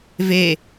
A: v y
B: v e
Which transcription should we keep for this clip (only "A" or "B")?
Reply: B